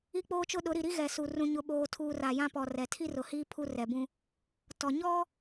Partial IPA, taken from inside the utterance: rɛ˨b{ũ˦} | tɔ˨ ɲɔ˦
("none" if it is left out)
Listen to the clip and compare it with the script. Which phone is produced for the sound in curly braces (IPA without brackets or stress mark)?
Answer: ũ˦